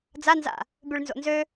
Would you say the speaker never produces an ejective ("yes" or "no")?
yes